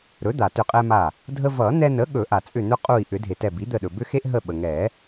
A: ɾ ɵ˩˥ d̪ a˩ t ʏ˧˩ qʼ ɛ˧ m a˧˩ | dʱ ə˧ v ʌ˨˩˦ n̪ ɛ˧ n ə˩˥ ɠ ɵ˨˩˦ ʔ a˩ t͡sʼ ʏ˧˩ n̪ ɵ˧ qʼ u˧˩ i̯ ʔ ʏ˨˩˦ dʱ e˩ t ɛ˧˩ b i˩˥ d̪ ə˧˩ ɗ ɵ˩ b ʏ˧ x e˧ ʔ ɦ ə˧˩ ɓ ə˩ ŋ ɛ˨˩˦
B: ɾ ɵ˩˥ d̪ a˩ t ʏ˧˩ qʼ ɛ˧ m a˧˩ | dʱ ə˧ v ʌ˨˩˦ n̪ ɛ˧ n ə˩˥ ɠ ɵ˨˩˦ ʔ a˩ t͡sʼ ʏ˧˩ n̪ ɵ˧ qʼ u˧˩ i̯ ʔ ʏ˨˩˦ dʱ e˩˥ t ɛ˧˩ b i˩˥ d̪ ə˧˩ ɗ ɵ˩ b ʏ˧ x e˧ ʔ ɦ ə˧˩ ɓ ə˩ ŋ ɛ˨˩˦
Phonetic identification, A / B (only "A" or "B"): A